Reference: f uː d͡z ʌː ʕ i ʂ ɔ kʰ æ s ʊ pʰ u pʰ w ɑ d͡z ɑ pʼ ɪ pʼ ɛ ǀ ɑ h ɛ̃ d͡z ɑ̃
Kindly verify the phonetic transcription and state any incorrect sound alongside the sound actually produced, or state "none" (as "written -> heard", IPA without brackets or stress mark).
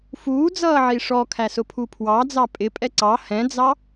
ɑ̃ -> ɑ